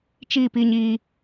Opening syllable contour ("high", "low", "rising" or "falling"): falling